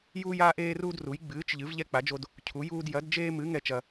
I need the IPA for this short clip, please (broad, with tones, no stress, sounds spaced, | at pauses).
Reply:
j uː˦ j aː˦ ʔ eː˦ r uː˦ d r u˨˥ j ɡ͡b ɨː˨˥ t͡ʃ ʎ ɨ˨˥ v ʎ ɛ˦ k͡p a˨˥ d͡ʒ o˦ d | cʰ u˨˥ j uː˦ d j ɐ˨˥ d d͡ʒ eː˦ m ɨ˨˥ ŋ ɛ˦ t͡ʃ ɐ˦